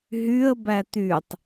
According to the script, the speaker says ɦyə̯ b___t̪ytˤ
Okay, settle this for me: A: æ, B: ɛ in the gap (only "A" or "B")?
A